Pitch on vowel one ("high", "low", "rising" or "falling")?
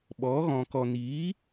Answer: rising